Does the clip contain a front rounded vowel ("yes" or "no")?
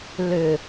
yes